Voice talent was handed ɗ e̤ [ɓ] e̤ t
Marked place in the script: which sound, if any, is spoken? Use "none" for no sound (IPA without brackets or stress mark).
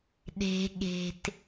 ɠ